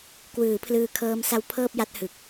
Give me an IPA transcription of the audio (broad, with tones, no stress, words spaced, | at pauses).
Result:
kwɯː˩˦ pʰlɯː˧kʰɤː˦˥msa˦˥w pʰɤː˥˩p̚ja˦˥t̚hɯ˨˩k̚